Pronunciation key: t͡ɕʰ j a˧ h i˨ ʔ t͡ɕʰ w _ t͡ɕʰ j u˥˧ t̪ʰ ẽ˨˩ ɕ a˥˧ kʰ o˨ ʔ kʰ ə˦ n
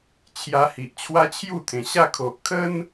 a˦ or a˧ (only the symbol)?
a˦